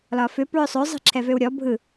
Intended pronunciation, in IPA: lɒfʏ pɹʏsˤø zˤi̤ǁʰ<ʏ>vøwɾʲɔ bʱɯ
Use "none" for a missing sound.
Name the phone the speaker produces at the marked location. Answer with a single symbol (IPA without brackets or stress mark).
ɛ